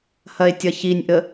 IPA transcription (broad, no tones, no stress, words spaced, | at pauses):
hɐe̯tʲɐçinʲʔə